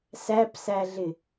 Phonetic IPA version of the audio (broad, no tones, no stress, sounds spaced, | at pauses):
s æ p s æ ɮ ɪ